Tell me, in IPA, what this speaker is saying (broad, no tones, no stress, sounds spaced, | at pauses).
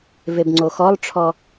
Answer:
v e b ŋ͡ǀ o x ɔ lˠ ʈ͡ʂʰ ɔ